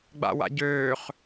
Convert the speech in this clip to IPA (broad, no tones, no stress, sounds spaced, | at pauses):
ɡ͡b a̰ w a̰ ɟ øː χ